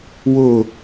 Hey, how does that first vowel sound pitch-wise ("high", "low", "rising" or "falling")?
falling